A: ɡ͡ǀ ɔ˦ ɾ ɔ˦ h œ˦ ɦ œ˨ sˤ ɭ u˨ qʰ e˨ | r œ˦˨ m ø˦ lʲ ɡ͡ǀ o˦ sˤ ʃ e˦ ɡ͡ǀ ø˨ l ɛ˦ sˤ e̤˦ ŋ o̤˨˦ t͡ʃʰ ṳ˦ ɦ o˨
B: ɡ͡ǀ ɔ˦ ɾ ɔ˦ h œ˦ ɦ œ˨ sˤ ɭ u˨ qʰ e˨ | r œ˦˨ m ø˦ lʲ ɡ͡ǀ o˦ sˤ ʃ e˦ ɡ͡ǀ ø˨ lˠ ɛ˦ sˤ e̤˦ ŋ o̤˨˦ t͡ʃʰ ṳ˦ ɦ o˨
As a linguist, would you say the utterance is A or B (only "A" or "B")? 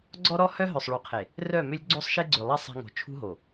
B